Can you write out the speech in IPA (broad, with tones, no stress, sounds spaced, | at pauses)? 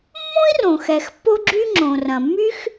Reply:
mː õ˥ i̯ r õ˩ x ɛ˩ x pː o˥ ɡ͡ǁ y˥ ŋ͡ǁ õ˩ r ɐ̃˩ mː y˥ x